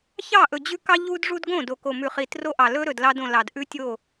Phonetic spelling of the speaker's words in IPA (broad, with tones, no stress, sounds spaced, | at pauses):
ç ɑ˦˨ ʔ ɵ˨ d͡ʑ ʉ˦ k ɑ˦ ʎ u˦ d ʐ u˦ d ɡ õ˦˨ d o˨ k o˨ m ʉ˨ χ i˨ t r o˦ ʔ ɑ˨ l ɵ˦ ɾ ɵ˨ d l ɑ˦ d õ˨ l ɑ˨ d ʔ ʉ˦ tʲ o˦˨